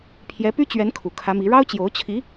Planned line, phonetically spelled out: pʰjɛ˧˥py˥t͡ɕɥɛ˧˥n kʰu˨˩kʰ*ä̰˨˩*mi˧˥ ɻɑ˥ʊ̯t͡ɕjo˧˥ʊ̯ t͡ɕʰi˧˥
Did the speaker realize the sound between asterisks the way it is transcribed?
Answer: no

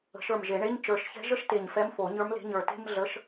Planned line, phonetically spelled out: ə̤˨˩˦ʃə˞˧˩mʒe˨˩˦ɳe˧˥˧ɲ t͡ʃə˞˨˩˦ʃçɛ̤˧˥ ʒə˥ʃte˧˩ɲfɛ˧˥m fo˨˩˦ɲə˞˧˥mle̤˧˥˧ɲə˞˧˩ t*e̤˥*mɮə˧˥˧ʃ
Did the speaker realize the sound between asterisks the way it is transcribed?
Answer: yes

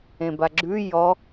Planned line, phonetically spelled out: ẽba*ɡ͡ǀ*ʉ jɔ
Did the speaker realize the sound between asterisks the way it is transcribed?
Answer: no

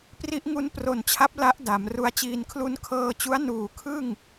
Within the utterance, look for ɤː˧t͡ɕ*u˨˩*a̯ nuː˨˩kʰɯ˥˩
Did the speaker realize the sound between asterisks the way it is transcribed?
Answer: no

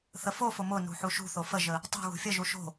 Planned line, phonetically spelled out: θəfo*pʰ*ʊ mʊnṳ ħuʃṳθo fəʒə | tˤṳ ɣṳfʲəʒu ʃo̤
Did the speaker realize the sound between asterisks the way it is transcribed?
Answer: no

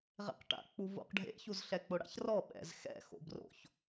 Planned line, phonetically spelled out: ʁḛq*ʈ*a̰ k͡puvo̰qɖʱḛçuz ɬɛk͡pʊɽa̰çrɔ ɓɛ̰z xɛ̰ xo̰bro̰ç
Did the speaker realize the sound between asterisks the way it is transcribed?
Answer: yes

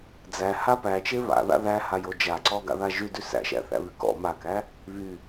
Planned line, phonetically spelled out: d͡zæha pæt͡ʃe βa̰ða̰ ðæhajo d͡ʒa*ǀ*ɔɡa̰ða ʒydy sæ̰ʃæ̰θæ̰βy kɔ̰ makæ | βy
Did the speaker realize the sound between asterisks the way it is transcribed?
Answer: yes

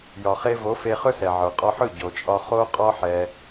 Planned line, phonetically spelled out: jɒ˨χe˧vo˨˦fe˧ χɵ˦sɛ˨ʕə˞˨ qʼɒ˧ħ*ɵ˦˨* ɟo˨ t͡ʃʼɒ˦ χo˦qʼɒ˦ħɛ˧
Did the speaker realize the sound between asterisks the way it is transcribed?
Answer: yes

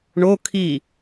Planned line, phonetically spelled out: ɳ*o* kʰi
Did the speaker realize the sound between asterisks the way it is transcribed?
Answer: yes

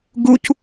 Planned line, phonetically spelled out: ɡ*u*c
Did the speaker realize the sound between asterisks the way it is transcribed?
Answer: yes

